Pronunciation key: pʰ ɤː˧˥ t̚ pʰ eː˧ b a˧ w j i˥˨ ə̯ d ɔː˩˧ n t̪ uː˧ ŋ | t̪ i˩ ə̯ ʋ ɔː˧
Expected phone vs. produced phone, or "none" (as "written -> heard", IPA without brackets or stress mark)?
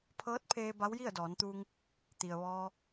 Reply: a˧ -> a˧˥